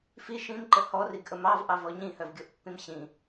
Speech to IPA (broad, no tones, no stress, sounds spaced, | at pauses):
f i ʃ ĩ m ǃ ə h ɔ r i ɡ ʔ ə m ɑ v ʔ ɑ v ɔ ɲ ĩ h œ v ɡʲ o ʔ pː ĩ m ɕ ĩ